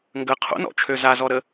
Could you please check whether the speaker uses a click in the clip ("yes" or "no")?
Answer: no